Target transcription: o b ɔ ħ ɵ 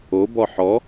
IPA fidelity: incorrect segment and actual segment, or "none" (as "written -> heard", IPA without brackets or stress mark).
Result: ɵ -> ɔ